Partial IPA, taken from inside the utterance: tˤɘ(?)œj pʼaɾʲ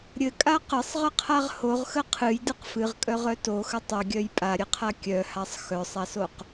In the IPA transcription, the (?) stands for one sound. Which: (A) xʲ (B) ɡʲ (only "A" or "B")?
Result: B